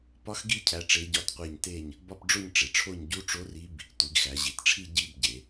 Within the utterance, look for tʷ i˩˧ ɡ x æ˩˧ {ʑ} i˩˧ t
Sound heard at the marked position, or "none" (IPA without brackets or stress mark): ʑ